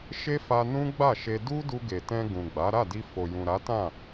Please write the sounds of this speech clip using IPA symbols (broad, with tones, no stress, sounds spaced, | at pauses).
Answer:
ʃ e˦ f a˧ n ũ˦ ɡ͡b a˦˨ ʃ e˧ d u˦ d u˧ ɡ e˨ t ɛ̃˧ ɡ ũ˨ ɡ͡b a˨˦ ɾ a˦˨ d i˧ f o˨ j ũ˨ ɾ a˨˦ t ã˦˨